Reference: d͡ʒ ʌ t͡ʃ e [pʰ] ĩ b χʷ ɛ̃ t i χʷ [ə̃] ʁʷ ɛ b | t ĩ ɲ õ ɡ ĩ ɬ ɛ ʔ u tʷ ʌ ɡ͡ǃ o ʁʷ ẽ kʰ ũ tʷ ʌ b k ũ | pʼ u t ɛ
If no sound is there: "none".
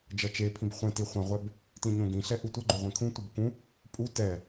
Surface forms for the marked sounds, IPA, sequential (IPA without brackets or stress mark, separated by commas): pʰ, ã